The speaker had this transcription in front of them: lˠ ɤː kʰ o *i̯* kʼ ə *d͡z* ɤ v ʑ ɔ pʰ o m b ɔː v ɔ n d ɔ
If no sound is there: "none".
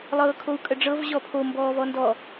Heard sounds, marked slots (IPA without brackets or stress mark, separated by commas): u̯, ɖ͡ʐ